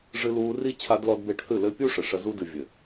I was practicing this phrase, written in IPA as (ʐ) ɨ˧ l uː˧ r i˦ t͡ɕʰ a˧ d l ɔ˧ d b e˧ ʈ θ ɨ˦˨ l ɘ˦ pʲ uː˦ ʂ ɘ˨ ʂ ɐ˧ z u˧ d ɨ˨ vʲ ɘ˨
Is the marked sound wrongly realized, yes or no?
no